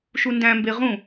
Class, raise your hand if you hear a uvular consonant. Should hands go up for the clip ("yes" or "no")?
yes